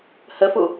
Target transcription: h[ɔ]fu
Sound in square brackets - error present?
yes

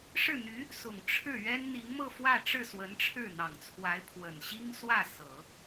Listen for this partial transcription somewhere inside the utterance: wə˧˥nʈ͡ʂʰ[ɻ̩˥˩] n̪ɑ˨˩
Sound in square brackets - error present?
no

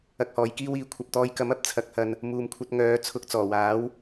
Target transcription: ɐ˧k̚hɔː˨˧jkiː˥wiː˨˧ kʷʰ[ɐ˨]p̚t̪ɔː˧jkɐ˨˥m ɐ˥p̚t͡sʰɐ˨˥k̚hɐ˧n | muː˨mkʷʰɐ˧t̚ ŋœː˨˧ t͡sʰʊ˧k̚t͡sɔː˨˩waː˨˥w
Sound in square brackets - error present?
no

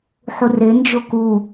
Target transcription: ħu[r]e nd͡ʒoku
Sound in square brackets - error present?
no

